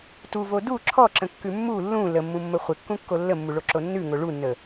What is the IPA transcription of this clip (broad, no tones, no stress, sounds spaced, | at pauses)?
t u v o d u ǁʰ ɔ ǁ ə̃ kː ʉ mː u lː ũ l ə mː ũ mː ə χʷ ɪ kː ũ kː o lː ə mː u ɭ o ǁ o nː ʉ ŋ o ɭ u nː ə